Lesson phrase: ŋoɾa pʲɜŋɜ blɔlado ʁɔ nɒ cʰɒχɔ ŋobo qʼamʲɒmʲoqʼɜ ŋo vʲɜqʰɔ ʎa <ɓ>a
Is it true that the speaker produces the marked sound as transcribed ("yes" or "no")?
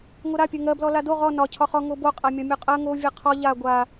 no